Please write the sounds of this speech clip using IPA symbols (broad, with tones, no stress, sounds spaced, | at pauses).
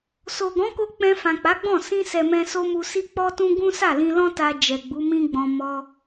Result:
s o˨ ɡ ɔ̃˨˦ k o˧ k͡p ɛ̃˧ f ã˨ k͡p a˨˦ ɡ͡b ɔ̃˦˨ s ĩ˧ s ɛ˨ m ɛ̃˧ s o˦ m u˧ s i˦ k͡p ɔ˦ t ũ˦ ɡ ũ˦ s a˦˨ l ĩ˧ l ɔ̃˦ t a˧ d͡ʒ ɛ˨ ɡ͡b u˨˦ m ĩ˦ ɡ͡b ɔ̃˧ m ɔ˧